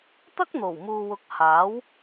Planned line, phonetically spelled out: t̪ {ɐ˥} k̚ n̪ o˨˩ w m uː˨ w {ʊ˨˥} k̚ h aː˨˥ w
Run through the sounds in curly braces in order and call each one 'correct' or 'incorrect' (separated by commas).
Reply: correct, correct